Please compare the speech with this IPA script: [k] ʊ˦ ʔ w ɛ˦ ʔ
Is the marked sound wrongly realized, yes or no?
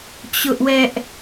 yes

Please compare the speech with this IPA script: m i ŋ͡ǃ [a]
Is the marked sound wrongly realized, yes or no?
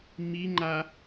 no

